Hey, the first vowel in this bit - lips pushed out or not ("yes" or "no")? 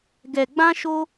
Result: no